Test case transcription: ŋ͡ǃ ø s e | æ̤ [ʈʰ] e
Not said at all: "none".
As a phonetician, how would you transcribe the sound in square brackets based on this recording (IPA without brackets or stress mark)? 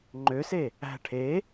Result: ʈʰ